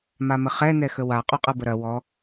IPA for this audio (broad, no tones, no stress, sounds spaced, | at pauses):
m a m ə χ ɛ n ɛ x ə w a qʼ o qʼ ɤ b ə ɾ ɐ w ɔ